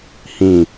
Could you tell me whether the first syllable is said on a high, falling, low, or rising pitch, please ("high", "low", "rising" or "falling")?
low